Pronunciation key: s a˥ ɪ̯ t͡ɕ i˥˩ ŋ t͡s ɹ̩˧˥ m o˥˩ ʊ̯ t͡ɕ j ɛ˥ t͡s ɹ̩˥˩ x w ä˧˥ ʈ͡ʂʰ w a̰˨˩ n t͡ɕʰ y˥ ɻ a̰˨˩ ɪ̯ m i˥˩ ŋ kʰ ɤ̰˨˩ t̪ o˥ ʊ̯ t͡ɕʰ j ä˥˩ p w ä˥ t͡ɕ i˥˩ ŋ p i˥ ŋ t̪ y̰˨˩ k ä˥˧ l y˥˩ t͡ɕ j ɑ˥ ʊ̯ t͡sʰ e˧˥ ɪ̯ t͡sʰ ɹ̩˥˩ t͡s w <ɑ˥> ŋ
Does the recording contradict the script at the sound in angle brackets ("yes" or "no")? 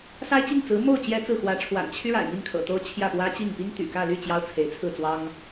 no